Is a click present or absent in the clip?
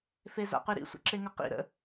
present